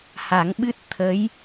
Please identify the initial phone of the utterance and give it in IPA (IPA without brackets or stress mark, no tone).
h